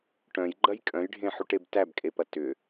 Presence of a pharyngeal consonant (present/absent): present